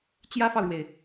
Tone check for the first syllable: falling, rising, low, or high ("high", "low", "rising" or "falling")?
high